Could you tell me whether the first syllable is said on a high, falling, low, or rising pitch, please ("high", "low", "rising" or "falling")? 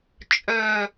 falling